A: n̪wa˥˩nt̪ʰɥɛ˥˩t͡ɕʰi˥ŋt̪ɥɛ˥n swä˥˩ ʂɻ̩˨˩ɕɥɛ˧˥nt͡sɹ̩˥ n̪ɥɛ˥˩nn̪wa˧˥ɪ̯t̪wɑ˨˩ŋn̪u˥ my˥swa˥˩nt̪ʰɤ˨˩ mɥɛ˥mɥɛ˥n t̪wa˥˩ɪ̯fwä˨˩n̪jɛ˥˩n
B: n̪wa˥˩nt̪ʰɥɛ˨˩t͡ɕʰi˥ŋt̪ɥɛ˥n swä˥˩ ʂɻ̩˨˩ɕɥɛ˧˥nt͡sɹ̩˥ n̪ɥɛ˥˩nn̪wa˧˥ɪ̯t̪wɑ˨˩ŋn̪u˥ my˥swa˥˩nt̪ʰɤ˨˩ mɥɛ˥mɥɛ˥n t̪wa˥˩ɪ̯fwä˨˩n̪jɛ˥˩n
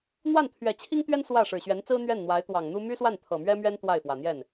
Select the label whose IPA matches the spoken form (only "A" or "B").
B